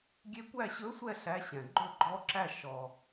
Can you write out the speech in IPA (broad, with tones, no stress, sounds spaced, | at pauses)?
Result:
ɡʲ e˦˥ kʷ æ˥˧ ɕ ɵ˦˥ sʷ ɛ˥˧ ɬ æ˦˥ ɕ ɛ̃˨ ɡ͡ǃ ɵ˥˧ ɡ͡ǃ ɔ˦˥ ǁ æ˥˧ ʃ ɔ˨